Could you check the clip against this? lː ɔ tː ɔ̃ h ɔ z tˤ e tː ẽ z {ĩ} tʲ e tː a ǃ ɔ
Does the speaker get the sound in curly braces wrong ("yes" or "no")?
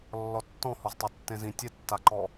no